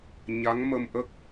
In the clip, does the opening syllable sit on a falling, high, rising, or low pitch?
rising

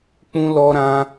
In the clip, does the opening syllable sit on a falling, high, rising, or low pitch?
high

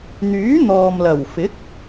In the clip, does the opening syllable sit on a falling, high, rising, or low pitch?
rising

